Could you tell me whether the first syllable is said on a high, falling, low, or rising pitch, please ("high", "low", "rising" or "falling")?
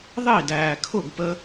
falling